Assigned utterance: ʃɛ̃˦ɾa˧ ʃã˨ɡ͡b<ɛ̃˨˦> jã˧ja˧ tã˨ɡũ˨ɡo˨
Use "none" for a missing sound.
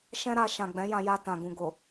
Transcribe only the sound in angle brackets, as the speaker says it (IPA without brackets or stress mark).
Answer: ɛ̃˨˦